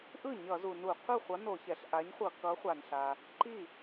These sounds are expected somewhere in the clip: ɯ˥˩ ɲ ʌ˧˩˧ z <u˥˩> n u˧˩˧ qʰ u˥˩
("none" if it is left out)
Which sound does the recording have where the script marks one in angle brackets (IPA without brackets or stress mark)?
u˩